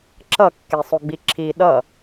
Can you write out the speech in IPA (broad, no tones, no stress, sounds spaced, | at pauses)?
ǁ ʌ kː e sˤ o ɡ͡b i ǁʰ i ɗ ʌ